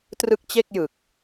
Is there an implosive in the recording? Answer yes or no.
no